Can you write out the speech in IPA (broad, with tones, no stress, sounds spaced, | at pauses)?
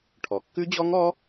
ʈʰ ɔ˩ kː ʉ˦˥ d͡ʑ ɔ˦˥ ŋ ɔ˦˥